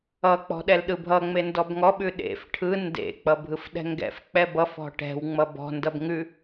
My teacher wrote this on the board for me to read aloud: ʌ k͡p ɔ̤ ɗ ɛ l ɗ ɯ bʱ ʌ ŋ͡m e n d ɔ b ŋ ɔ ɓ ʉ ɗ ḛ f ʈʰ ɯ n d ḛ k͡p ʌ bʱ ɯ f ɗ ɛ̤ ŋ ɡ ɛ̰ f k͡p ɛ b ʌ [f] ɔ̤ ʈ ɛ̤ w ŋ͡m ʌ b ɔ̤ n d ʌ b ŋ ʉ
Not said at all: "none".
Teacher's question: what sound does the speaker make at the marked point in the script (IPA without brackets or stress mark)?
f